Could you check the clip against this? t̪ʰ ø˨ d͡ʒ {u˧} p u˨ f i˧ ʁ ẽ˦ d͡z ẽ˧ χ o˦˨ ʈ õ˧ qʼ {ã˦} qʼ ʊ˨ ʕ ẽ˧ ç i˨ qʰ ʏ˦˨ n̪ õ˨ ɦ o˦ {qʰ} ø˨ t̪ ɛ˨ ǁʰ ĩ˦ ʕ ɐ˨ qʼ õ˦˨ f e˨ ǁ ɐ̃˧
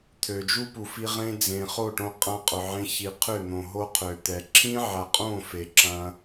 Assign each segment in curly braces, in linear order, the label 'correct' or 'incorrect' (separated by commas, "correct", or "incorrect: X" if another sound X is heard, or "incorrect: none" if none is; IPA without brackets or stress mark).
incorrect: u˦, incorrect: ã˧, correct